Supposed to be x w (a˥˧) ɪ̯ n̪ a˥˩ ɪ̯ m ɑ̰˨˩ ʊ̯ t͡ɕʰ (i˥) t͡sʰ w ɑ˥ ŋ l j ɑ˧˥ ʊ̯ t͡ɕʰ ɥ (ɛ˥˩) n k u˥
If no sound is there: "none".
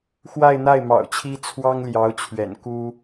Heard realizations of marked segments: a˥˧, i˥, ɛ̰˨˩

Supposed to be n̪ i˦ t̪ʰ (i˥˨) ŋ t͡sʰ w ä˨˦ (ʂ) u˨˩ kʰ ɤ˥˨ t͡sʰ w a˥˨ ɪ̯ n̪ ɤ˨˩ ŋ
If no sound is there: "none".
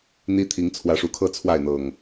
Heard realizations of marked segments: i˨˦, ʂ

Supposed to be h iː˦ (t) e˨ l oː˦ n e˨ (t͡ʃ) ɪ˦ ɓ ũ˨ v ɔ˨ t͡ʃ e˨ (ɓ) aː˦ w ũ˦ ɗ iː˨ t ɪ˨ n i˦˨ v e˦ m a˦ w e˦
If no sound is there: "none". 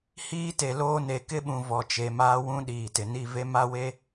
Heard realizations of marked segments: t, k, m

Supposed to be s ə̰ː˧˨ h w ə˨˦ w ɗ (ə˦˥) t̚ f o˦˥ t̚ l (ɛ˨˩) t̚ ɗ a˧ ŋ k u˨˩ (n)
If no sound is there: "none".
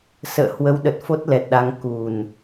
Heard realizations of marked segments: ə˨˩, ɛ˨˩, n

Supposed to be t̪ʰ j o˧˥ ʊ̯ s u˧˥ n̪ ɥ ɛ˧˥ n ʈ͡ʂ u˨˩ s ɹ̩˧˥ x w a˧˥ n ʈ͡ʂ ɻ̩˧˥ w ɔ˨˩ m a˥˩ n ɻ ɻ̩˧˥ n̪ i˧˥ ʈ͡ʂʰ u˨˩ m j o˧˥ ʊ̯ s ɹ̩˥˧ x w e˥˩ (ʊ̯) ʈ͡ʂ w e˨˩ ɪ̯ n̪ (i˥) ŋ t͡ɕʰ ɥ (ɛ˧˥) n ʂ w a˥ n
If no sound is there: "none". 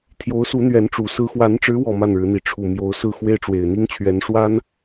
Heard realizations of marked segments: ɪ̯, i˥, ɛ˧˥

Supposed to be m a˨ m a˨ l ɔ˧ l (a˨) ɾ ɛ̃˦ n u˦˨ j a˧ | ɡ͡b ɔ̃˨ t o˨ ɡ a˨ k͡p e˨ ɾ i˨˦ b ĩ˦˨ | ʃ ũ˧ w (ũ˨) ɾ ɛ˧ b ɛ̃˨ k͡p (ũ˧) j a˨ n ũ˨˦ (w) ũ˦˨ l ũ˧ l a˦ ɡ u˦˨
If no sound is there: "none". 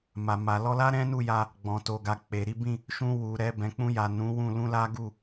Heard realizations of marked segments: a˦, u˨, ũ˧, w

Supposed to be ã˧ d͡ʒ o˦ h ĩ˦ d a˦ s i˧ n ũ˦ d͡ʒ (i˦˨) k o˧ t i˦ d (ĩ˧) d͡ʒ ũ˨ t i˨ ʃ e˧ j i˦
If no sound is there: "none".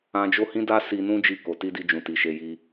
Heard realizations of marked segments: i˦˨, i˧

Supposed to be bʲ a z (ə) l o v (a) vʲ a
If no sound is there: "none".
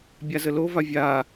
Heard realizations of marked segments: ə, a

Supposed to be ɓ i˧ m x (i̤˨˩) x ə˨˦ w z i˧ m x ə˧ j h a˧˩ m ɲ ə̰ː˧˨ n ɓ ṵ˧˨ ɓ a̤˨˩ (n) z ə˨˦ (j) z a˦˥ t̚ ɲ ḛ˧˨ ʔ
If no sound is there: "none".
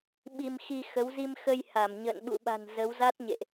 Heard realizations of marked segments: i˧, n, w

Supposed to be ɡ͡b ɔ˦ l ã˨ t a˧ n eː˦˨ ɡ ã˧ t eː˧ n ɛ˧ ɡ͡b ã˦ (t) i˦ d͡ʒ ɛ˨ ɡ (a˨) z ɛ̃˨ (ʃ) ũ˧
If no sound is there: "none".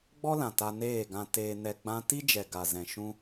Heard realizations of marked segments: t, a˨, ʃ

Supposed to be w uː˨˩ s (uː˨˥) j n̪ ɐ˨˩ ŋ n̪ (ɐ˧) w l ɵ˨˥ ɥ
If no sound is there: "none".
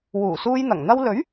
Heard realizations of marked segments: uː˧, ɐ˧

